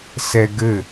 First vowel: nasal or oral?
oral